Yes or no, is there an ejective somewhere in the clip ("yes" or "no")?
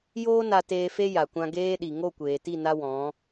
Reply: no